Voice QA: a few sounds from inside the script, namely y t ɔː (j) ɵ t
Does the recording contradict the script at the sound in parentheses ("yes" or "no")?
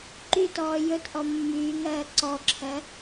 no